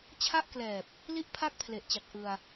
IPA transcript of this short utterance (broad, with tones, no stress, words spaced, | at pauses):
t͡ɕʰa˥˩ʔklɛː˨˩p̚ | li˥˩ʔpʰa˥˩k̚pʰle˨˩ʔt͡ɕa˨˩k̚ ʔɯ˧a̯